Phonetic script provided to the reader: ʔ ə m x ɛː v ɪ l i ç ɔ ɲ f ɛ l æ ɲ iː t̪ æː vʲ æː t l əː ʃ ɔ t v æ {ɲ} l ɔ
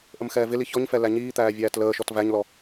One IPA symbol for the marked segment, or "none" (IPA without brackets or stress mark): ɲ